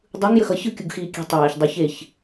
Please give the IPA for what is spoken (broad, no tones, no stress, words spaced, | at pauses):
dˤɯŋ jəxʌ çɯ kʲuɡxiːkʲe̤ tˤeːç dˤoç eç